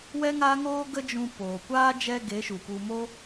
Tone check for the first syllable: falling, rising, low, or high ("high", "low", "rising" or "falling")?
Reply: high